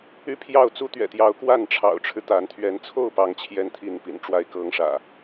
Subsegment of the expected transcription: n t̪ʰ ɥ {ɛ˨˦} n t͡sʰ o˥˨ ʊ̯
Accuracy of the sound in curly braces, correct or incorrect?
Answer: correct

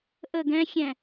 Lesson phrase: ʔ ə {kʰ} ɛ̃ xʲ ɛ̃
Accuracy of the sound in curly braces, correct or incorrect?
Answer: incorrect: ɡ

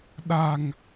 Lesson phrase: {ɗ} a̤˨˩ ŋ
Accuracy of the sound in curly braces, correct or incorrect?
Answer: correct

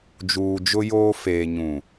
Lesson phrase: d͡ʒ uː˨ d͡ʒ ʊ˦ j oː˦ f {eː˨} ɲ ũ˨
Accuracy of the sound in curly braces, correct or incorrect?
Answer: correct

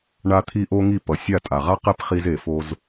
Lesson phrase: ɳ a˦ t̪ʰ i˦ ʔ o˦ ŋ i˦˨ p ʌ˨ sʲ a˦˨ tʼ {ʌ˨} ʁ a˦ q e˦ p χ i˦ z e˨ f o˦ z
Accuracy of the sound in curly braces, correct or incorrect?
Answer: incorrect: a˨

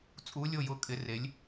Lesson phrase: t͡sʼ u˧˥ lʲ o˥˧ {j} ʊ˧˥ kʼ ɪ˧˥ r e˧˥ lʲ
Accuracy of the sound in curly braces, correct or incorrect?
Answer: correct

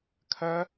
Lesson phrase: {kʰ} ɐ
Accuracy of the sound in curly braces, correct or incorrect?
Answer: correct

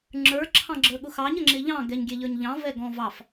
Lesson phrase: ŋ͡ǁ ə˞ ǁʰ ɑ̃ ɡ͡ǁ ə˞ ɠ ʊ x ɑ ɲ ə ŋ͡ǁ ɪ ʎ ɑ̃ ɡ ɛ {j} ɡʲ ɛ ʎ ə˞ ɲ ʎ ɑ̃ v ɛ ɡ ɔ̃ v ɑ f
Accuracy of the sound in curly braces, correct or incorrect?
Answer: incorrect: ɲ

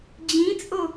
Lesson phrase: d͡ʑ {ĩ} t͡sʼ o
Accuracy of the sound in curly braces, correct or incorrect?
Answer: correct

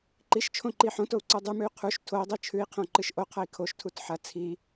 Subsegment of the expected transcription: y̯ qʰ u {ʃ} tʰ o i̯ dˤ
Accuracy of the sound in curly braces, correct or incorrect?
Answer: correct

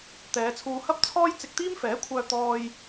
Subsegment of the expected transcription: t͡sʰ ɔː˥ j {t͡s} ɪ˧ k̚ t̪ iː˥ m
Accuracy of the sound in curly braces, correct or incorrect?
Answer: correct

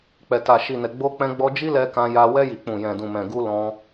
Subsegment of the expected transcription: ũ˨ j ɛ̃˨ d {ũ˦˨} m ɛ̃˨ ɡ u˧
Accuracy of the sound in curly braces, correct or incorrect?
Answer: incorrect: ũ˨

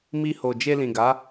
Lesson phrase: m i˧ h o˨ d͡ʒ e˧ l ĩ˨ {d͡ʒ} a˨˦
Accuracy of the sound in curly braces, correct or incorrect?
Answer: incorrect: ɡ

